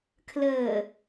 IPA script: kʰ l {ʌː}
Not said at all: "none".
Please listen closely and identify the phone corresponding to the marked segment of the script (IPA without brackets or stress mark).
əː